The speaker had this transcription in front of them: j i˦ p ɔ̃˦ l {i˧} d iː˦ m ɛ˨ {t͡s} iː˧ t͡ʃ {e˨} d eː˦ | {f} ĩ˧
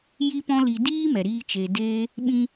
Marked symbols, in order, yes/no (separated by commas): yes, no, yes, no